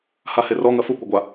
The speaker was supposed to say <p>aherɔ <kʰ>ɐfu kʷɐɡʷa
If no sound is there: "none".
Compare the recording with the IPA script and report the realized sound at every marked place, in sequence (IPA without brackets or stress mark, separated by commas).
h, ŋ